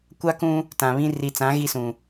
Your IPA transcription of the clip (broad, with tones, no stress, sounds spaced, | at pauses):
kʷ a˦ k ũ˦ | t ã˨ β ĩ˦ r i˨ t͡s ã˨˦ ɣ i˦ s ũ˨